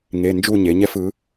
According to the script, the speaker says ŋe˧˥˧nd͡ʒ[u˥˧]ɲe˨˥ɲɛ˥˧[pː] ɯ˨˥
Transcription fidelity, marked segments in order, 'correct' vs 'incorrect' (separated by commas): correct, incorrect